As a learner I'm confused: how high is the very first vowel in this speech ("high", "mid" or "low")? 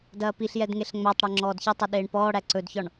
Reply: low